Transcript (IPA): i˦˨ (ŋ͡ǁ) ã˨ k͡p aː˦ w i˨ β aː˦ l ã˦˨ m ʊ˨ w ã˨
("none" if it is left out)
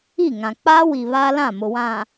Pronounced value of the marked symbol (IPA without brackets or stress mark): ŋ